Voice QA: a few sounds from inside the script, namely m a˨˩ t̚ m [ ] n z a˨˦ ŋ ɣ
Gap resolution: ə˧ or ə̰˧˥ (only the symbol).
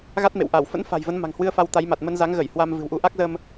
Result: ə˧